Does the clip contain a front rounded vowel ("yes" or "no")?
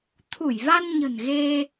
no